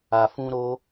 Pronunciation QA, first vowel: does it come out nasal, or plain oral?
oral